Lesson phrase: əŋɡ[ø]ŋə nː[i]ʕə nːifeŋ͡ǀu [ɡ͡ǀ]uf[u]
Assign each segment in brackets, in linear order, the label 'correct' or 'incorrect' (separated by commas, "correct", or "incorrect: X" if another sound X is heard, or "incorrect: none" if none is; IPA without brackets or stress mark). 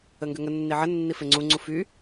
correct, correct, incorrect: ŋ͡ǀ, incorrect: y